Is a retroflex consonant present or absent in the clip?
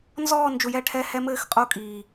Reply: present